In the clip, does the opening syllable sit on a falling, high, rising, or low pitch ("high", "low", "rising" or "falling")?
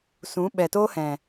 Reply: rising